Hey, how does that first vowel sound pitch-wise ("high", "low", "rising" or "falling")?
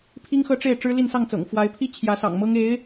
high